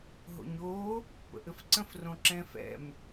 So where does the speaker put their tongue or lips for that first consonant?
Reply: throat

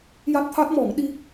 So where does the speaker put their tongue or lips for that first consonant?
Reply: palate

